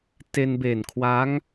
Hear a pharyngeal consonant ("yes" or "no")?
no